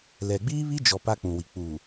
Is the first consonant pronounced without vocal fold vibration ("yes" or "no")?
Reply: no